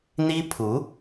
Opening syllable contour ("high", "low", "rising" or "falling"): high